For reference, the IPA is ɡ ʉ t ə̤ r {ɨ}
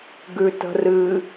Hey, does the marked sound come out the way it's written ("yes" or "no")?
yes